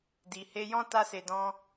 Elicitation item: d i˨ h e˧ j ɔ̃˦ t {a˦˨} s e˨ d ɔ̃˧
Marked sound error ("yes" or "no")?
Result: yes